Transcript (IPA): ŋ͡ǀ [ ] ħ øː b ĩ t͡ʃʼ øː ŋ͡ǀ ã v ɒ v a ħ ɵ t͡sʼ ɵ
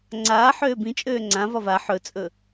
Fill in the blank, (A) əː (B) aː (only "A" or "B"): B